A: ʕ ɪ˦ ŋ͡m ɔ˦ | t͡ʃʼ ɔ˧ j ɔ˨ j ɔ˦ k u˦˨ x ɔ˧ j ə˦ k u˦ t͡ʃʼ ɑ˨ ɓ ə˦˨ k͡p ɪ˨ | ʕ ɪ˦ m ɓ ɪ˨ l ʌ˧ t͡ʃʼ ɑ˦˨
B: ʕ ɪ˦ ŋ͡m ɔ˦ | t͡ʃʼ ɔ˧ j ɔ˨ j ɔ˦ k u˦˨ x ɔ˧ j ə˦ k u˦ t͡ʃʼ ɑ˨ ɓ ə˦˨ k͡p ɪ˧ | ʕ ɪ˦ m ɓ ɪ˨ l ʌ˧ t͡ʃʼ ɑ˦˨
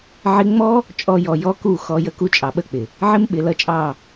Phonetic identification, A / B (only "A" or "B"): A